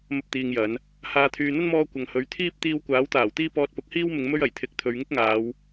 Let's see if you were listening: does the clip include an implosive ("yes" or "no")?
no